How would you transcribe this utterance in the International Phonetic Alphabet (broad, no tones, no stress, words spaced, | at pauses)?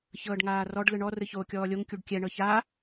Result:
çɤːɖŋaːrɔɖ lɯɳɔ rɯçoːkʲɔːlʲoŋ kʲuɖkʲɛ ɳɤça